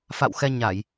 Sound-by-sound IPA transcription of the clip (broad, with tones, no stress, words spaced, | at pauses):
fa̰˧˨wxɛ˧ ɲa˧˩˨j